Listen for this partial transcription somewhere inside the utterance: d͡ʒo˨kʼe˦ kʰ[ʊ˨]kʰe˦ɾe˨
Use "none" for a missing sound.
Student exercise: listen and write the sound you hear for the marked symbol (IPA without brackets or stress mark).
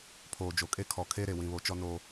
ɔ˨